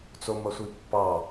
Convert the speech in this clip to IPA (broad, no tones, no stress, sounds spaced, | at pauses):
t͡s o m ɐ sʷ i pː ɑ